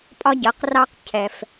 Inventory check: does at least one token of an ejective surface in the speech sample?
yes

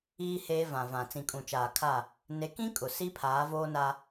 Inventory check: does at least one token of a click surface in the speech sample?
no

